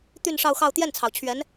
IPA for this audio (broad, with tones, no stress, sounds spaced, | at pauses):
t̪ y˥˧ n ʂ ɑ˥˧ ʊ̯ x ɑ˥˧ ʊ̯ t̪ j ɛ˥˩ n t͡sʰ ɑ˩ ʊ̯ t͡ɕʰ ɥ ɛ˧˥ n